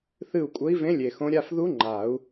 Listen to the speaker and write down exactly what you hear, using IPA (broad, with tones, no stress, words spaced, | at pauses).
θɨ˦˨u̯kʷʼə˧˥i̯vẽ˧˥ lʲe˨xõ˧˥ ɾʲa˦˨fðu˧˥ ŋ͡ǃa˨˩˦u̯